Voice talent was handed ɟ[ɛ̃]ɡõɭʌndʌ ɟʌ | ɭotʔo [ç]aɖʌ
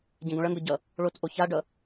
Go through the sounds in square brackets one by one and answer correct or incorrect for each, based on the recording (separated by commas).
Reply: correct, correct